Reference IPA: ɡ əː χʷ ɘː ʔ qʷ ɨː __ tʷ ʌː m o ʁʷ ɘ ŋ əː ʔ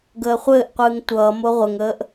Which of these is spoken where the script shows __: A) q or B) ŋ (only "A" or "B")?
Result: B